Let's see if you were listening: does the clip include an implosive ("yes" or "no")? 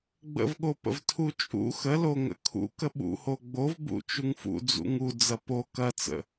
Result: yes